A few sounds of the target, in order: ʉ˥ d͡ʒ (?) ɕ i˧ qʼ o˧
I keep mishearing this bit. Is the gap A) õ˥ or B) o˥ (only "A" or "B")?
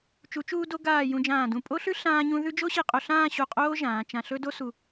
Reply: B